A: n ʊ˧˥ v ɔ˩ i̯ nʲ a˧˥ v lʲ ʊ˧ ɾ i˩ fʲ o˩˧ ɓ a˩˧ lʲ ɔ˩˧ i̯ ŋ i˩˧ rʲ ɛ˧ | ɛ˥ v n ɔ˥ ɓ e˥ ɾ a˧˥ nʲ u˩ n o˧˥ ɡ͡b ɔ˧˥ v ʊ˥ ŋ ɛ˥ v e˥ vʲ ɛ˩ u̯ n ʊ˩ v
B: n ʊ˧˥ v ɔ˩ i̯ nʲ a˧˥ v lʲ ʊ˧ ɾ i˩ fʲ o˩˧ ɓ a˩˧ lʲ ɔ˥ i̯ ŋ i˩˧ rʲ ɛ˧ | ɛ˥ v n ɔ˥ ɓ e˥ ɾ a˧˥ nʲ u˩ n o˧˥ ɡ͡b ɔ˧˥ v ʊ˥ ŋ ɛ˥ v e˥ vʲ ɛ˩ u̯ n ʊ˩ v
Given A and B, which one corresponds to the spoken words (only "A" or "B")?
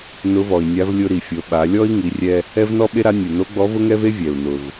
B